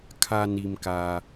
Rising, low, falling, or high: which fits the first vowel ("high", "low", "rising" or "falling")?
low